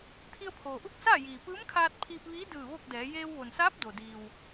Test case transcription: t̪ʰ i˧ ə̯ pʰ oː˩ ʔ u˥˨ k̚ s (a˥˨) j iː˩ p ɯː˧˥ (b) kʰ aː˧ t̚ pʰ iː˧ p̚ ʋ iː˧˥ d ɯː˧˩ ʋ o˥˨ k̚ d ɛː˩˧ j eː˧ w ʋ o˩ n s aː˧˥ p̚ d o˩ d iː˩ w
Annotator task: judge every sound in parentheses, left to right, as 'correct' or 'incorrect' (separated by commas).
incorrect, incorrect